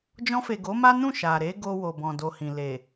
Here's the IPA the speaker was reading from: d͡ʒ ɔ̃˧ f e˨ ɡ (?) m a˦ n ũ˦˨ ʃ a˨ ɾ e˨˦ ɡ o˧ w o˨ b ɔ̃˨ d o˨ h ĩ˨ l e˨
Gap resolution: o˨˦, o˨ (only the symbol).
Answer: o˨˦